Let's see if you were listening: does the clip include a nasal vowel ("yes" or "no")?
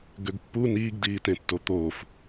yes